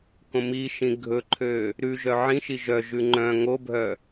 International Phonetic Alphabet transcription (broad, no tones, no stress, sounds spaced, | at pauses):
k õ m i ʃ ĩ ɡʱ ɵ ǃʰ ø | ɾ ʉ ʒ œ ʕ ĩ ʃ i ʒ œ ʒ ʉ ŋ͡ǃ œ̃ ŋ o bʱ œ